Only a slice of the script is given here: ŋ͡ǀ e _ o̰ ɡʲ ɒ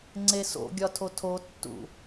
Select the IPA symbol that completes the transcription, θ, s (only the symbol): s